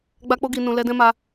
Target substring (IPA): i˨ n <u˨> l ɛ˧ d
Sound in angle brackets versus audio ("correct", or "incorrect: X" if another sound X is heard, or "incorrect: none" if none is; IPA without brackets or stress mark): incorrect: ũ˨